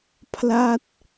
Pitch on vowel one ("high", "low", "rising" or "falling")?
falling